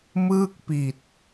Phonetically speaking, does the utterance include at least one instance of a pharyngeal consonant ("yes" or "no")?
no